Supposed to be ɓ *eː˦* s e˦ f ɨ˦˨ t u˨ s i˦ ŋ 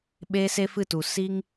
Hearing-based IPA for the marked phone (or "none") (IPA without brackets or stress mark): eː˦